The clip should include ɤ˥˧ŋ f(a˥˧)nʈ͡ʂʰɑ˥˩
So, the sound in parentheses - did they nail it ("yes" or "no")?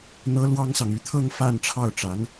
yes